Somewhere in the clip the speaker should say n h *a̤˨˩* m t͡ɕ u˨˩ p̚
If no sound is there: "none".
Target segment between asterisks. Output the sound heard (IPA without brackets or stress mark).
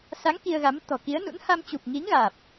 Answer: a˧